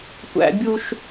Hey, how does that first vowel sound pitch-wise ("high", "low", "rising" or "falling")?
high